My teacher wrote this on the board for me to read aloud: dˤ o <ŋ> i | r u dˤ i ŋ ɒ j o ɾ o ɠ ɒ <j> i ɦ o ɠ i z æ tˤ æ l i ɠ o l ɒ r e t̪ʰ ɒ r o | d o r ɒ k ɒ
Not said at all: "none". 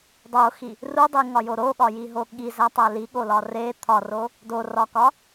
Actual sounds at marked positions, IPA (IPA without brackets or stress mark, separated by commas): x, j